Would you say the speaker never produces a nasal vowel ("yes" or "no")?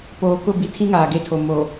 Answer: no